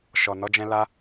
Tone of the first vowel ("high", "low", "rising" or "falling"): low